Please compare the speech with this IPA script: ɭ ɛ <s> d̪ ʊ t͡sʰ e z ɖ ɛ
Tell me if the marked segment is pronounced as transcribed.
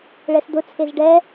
yes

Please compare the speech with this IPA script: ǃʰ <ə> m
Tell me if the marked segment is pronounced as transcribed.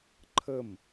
yes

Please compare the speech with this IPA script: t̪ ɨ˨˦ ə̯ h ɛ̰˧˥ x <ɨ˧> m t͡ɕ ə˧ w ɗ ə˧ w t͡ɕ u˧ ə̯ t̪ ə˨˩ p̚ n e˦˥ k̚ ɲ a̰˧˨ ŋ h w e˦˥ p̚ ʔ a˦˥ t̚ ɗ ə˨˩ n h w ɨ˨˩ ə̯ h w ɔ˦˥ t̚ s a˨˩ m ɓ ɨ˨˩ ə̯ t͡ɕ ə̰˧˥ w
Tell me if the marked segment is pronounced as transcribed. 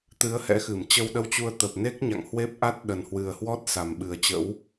no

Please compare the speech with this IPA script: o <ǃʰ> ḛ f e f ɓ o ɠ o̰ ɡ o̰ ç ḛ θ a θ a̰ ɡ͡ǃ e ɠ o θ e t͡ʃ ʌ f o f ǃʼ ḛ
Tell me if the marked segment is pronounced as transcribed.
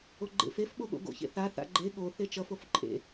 no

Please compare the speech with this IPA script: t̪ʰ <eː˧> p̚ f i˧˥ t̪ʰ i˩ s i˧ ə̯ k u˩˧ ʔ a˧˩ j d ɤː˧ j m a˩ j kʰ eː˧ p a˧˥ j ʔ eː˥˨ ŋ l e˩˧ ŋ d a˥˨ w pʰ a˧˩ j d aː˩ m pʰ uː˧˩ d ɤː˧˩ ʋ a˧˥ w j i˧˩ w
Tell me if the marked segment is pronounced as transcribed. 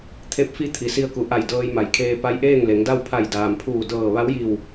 no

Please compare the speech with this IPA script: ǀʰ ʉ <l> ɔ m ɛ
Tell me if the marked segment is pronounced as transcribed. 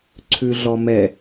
no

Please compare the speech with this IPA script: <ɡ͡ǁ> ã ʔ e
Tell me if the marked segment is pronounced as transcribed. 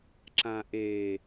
no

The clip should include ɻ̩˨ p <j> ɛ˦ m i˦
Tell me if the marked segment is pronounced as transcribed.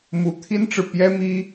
yes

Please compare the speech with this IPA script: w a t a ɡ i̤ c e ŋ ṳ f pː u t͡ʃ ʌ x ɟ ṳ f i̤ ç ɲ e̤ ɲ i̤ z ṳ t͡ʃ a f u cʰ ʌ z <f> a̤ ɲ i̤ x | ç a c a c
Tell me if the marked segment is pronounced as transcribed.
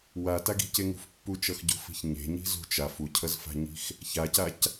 yes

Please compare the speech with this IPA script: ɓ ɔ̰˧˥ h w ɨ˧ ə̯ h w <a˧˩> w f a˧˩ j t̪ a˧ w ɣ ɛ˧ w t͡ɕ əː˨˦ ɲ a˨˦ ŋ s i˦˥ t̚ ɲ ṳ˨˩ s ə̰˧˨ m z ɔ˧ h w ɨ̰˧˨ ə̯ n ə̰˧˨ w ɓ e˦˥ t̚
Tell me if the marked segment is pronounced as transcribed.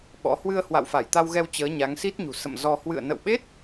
no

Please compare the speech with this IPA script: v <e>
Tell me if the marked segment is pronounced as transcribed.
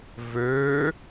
no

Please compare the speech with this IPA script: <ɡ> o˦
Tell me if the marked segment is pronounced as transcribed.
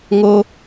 no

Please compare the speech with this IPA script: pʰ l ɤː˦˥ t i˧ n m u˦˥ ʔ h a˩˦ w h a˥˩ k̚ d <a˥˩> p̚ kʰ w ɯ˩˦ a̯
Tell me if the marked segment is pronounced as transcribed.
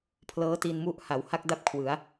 yes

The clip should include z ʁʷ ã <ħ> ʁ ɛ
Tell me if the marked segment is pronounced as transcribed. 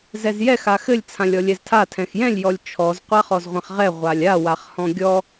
no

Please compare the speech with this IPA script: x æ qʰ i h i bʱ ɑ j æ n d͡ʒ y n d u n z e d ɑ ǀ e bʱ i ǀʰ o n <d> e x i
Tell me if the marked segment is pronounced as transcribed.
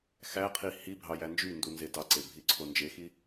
no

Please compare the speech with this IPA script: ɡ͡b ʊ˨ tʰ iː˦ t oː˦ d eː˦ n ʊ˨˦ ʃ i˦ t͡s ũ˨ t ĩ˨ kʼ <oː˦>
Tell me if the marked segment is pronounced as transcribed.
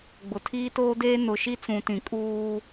no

